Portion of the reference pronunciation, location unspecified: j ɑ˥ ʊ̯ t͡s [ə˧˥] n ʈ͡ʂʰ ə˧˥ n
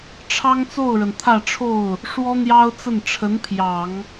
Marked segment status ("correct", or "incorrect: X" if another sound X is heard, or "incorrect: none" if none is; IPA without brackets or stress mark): incorrect: ə˥˩